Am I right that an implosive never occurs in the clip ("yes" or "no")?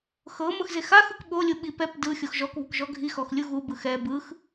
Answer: no